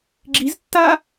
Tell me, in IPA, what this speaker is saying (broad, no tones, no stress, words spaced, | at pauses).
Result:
ɡ͡ǁiztːaː